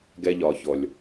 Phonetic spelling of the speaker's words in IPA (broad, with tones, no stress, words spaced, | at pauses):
ɡɛ˦ʎɒ˨çɔ˨lʲ